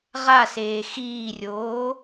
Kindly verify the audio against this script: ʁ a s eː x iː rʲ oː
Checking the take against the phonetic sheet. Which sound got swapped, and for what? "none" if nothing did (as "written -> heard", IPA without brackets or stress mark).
none